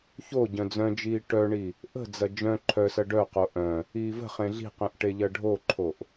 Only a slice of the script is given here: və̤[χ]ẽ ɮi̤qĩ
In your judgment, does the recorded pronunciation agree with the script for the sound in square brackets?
yes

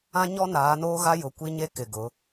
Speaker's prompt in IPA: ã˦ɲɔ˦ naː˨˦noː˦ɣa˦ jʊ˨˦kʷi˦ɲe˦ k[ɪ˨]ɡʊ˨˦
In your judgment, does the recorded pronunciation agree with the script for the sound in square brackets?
yes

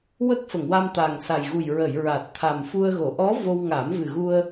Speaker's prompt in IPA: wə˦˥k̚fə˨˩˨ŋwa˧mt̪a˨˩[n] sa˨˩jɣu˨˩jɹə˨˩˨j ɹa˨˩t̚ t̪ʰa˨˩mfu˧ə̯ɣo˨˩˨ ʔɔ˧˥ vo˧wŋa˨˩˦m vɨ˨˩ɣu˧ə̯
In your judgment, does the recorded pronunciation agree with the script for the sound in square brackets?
no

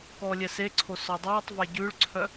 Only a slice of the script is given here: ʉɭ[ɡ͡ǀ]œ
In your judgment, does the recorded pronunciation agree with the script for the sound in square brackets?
no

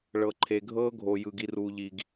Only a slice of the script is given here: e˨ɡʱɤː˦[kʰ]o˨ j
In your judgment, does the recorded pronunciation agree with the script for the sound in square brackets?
no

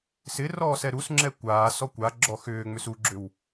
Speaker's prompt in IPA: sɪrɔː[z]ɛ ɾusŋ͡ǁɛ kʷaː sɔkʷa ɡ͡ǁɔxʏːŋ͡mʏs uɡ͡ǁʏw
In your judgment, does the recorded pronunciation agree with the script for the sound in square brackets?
no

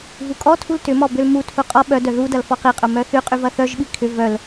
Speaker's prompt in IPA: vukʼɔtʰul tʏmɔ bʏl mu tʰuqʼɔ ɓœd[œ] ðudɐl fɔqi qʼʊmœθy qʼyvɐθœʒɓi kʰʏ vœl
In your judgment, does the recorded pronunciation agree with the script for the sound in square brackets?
yes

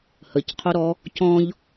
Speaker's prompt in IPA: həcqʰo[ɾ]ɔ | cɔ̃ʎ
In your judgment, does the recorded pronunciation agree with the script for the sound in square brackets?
yes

